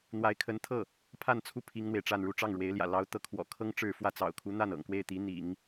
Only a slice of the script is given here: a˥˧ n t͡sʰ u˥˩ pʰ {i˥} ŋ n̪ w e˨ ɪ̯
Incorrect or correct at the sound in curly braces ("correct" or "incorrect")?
correct